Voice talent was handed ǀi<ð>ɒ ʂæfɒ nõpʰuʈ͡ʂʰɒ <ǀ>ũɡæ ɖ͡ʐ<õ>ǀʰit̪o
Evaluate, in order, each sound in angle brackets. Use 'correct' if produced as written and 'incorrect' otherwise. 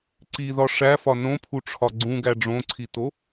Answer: correct, incorrect: ɡ͡ǀ, correct

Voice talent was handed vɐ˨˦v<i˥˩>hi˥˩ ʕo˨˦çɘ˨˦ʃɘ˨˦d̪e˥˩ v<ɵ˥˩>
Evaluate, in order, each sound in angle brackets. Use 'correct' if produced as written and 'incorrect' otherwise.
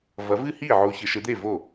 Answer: incorrect: ɨ˥˩, incorrect: o˥˩

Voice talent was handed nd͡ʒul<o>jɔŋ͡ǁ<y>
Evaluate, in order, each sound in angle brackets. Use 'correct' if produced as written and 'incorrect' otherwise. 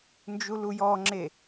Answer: incorrect: u, incorrect: e

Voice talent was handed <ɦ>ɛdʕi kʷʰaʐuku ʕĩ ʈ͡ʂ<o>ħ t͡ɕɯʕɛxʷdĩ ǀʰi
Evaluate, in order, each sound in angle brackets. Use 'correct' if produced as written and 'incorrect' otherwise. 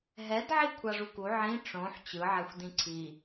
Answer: correct, incorrect: õ

